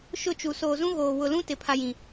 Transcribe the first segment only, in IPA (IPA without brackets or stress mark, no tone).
ʃ